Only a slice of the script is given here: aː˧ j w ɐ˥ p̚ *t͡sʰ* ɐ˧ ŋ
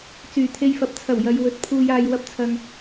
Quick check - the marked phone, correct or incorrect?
correct